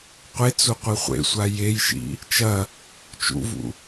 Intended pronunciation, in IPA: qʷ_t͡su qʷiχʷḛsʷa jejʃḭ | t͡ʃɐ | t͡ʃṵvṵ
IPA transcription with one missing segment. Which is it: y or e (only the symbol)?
e